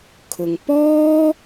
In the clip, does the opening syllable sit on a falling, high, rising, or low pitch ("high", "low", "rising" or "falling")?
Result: low